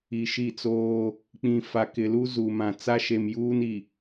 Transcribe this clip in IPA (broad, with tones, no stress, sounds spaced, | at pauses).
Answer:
i˨ ʃ i˦˨ t͡s oː˦ | k͡p ĩ˨ f a˨ k ɪ˨ l u˦ z u˨ m ã˨ t͡s a˦ ʃ e˨ m j uː˦ n i˨